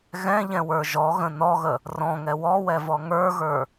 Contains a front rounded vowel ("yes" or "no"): no